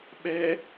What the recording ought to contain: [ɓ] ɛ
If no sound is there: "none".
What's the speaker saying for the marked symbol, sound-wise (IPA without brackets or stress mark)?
ɓ